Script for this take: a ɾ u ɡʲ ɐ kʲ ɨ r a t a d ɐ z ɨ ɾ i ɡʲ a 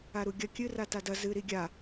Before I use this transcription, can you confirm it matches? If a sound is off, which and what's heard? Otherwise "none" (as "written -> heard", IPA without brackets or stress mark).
none